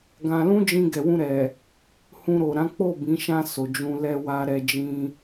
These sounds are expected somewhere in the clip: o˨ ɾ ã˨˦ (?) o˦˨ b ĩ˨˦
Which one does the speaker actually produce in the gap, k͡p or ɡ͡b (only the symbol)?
k͡p